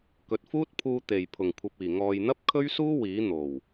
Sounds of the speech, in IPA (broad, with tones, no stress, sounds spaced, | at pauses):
k ɵ˨ t̚ f uː˥ t̚ pʰ uː˧ t̪ e˨˩ j pʰ ʊ˨˩ ŋ kʷʰ ɐ˨ p̚ iː˨˩ ŋ ɔː˨ j n̪ ɐ˥ p̚ kʰ ɵ˥ ɥ s uː˥ w iː˨˥ n̪ o˨˩ w